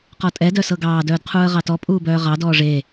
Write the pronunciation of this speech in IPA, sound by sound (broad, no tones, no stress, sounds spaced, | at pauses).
q ɔ tʼ ɛ d œ s ɤ ɡ ɑː d œː d qʰ uː ə̯ ʁ ɑ t ɔ pʼ uː b œː ʁ ɑ d ɔː ʐ e